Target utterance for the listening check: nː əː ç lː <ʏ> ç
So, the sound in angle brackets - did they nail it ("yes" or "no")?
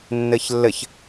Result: no